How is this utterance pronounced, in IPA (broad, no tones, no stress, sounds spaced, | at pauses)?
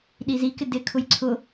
ɗ i z i k ɪ d ɪ kʰ ʊ j ǀʰ ʊ